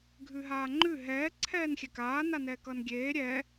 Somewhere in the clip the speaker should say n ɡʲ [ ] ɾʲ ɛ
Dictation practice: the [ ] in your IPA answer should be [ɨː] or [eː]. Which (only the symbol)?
eː